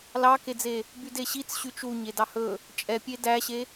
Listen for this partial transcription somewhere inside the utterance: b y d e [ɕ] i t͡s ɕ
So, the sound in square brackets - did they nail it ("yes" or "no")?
yes